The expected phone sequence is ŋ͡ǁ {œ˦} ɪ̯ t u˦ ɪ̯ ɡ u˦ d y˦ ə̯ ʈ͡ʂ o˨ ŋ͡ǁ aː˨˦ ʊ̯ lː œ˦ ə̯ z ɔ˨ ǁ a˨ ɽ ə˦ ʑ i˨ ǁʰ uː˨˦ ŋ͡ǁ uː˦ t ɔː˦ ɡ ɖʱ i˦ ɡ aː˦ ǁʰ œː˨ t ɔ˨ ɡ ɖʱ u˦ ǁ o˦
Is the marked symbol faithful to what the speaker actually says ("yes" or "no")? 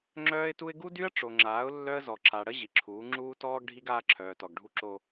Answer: no